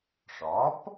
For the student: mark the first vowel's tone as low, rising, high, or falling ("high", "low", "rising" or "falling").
rising